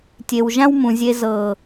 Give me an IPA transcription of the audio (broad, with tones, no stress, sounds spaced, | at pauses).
tʲ e˨ w ʒ ã˧ w m ũ˨ zʲ e˨ z ɤː˨